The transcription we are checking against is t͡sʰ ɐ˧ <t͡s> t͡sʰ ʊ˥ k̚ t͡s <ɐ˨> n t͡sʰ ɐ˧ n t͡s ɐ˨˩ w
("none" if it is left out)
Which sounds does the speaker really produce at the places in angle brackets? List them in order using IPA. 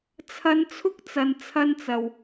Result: n, ɐ˨

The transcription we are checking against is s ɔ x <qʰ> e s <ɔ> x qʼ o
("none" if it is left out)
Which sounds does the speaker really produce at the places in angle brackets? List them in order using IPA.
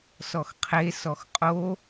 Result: qʰ, ɔ

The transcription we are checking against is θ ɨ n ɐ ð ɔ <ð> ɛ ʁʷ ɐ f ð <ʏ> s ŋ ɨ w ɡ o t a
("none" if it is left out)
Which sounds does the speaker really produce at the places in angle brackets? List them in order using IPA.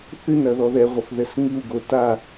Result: ð, ɛ

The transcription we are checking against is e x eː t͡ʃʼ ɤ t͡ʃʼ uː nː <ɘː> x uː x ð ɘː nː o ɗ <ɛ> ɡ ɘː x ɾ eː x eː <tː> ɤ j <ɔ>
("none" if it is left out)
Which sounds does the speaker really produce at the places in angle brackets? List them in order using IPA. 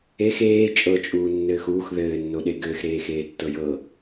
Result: ɘː, e, tː, ɤ

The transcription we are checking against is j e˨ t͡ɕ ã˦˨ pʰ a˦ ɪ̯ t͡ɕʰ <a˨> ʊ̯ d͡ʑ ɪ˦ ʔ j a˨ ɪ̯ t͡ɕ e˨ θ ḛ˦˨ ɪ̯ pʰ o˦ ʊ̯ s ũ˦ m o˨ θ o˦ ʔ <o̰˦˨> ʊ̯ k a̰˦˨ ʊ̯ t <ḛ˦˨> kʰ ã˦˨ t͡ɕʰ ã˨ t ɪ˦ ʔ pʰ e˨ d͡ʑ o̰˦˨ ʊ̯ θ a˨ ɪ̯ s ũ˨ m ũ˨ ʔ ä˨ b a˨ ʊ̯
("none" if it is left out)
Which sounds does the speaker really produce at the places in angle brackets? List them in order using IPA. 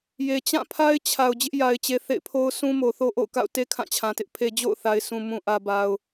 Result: a˨, o̰˦˨, e˦

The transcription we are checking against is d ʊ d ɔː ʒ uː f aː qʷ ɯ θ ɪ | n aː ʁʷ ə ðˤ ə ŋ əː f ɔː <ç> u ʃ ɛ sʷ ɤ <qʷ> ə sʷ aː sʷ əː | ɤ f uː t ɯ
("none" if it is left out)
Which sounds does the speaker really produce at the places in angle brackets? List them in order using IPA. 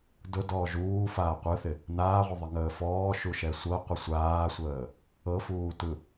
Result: ʃ, qʷ

